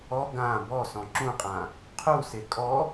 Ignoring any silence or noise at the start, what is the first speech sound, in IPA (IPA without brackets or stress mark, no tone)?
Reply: ɔ